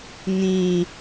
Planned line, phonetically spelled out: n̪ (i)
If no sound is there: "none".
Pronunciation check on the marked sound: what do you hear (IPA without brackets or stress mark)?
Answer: ĩ